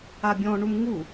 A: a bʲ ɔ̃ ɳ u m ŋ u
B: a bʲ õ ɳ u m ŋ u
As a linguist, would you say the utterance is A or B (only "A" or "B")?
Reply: A